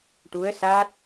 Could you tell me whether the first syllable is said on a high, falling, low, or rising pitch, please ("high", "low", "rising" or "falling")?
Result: rising